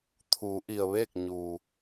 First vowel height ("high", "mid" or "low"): high